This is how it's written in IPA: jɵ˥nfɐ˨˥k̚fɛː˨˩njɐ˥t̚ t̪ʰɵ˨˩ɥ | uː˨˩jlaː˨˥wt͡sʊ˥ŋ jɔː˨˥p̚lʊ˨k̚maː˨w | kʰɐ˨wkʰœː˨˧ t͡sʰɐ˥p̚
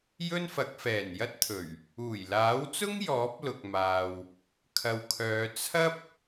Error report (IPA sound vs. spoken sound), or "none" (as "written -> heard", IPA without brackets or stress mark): none